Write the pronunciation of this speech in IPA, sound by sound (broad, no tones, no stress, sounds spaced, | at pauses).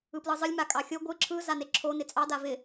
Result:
ɯ p l ɯ zˤ ɯ lʲ m a kʼ ɑ xʲ o ɡʷ ɯ ǁʰ ɯ z a n e ǁʰ o n ɪ t͡sʼ ɑ d a v ɪ